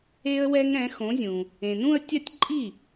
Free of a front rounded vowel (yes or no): yes